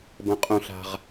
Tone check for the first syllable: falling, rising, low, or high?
low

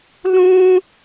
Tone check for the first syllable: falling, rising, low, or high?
high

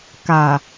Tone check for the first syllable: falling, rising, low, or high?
low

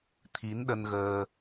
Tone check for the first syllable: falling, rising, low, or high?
rising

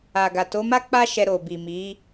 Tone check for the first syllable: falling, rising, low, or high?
low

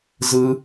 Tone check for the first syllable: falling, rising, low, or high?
high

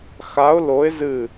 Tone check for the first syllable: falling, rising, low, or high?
rising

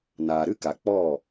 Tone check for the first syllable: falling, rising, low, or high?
low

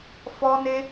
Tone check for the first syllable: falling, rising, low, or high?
high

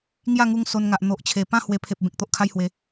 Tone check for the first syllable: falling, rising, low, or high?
falling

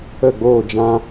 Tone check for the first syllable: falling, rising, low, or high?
falling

